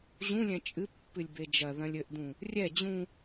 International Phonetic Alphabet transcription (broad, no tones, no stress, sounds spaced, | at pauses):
ʑ ũ lʲ ɛ̃ t͡ʃʼ ɨ pː ɨ lʲ b e d͡ʒ ɐ ð ɐ̃ lʲ ɘ ʔ d ũ | rʲ ɛ d͡ʑ ũ